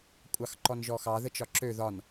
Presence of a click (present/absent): present